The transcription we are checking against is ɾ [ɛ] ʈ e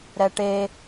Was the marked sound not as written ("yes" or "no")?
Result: no